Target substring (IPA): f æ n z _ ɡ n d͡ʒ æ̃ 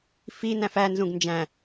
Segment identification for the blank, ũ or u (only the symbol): ũ